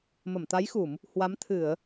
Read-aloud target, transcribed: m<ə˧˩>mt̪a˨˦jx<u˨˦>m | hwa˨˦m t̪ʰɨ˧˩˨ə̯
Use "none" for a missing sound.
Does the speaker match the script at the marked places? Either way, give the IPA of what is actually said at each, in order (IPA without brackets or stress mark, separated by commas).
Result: ə˧˩, u˧˩˨